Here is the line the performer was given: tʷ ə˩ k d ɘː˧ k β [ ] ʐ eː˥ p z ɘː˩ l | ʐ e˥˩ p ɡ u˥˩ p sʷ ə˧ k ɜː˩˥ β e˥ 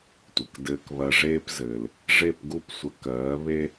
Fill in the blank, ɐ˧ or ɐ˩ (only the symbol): ɐ˧